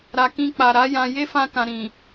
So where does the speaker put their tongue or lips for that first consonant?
tongue tip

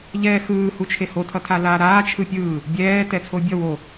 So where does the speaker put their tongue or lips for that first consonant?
palate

